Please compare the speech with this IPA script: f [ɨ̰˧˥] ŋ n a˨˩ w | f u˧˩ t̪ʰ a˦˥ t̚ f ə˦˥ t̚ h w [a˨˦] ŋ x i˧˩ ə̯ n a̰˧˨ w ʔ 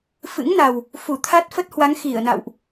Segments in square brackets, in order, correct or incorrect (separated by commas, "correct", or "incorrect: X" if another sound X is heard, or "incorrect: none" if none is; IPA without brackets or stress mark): correct, correct